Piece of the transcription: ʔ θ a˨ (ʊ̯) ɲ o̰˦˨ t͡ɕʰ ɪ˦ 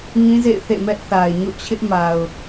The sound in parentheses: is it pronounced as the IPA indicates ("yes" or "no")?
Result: no